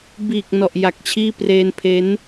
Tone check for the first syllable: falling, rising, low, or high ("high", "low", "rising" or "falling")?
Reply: low